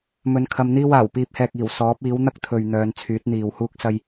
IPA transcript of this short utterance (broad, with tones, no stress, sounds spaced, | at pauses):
m ɵ˨˧ n kʰ ɐ˧ m n̪ iː˥ w aː˨˩ w p iː˨ p̚ h ɛː˨ k̚ iː˨˩ w s ɔː˨˥ p̚ iː˨˥ w n̪ ɐ˥ k̚ t̪ʰ ɵ˨ ɥ n̪ œː˨˧ n t͡sʰ yː˨˥ t̚ n̪ iː˨ w h uː˥ k̚ s ɐ˥ j